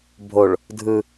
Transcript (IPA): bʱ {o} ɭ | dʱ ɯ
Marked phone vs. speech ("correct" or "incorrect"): correct